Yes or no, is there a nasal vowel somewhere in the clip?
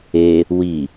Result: no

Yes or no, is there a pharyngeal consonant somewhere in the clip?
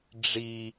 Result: no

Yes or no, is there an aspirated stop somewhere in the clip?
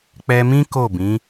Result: no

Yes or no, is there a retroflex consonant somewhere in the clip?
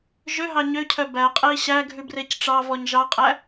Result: yes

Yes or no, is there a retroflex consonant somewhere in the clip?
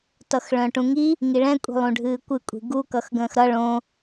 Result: yes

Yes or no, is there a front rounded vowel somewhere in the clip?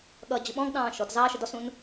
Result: no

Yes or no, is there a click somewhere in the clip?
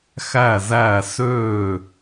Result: no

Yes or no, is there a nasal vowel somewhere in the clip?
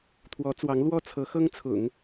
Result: no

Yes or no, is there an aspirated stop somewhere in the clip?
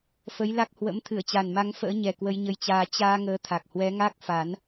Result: yes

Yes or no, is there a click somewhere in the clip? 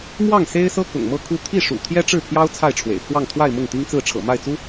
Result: no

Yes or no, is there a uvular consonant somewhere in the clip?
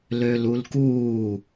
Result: no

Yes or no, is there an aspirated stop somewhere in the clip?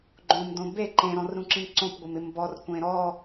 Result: no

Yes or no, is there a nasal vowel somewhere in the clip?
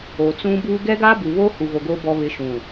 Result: yes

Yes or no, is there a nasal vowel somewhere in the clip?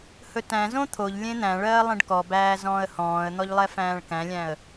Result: yes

